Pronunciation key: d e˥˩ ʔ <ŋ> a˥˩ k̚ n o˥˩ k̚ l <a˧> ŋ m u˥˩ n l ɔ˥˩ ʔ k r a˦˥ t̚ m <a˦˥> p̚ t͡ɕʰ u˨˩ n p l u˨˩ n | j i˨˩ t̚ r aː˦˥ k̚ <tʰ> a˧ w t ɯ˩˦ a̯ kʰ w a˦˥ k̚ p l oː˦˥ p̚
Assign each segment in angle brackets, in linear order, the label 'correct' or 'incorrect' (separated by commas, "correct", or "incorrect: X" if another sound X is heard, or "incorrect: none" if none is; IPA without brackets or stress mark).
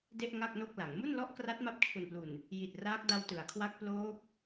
correct, incorrect: a˩˦, correct, incorrect: d